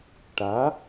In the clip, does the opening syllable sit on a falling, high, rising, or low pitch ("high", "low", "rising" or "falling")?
rising